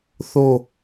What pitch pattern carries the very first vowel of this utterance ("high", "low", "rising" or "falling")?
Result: falling